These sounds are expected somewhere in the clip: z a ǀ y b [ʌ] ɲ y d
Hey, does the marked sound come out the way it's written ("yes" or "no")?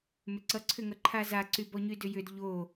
no